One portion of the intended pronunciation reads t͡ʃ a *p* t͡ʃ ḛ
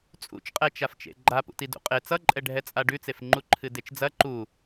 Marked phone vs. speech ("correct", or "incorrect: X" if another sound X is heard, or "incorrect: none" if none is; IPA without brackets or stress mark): incorrect: f